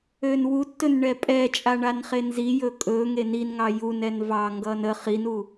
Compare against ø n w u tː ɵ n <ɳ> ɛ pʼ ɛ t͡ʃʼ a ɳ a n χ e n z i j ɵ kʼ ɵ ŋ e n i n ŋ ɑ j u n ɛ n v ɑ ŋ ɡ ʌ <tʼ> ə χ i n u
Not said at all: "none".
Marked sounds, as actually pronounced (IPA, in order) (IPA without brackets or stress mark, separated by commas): ɳ, n